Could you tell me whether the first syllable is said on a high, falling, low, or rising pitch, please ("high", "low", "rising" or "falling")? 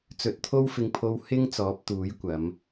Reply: rising